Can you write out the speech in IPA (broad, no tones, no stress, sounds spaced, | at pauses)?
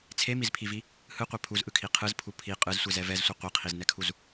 t͡sʰ e m i z pʰ i v i | h ɯ qʷ ɛ pʰ u z ʔ ɯ kʰ i qʰ ɯ z pʰ u pʰ i qʼ ɯ z sʷ e z ɛ v ɛ z sʷ ɛ qʷ i qʰ i z n ɛ kʰ u z